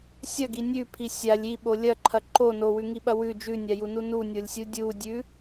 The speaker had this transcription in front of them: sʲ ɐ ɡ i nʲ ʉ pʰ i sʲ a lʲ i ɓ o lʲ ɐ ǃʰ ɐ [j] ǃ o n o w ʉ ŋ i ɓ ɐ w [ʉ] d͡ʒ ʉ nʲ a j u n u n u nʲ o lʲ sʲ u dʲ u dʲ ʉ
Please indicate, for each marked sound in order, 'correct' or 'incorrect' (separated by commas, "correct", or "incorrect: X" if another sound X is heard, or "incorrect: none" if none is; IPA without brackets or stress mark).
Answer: incorrect: none, correct